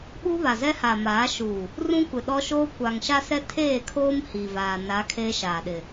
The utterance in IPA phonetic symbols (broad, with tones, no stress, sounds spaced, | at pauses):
ɓ u˦ β a˨ z ɛ˦ h a˨ m aː˨˦ ʃ u˨ | r ũ˦ kʷ ɪ˨ ɗ ɔ˦ ʃ oː˦ kʷ a˨ ŋ ʃ a˦ s ɛ˦ tʰ eː˦˨ kʰ oː˦ m h i˨ v aː˨ n a˨˦ kʰ eː˦ ʃ aː˨ ɗ ɪ˨